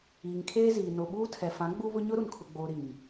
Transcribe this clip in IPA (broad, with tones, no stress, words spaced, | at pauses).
iː˨ŋkʰeː˦ziː˨ no˨ɓuː˦tʰɛ˨ fã˨˦ɡ͡bu˦βʊ˦ ɲʊ˦ɾu˨nkʰʊ˨ɡ͡boː˨ ɾi˨m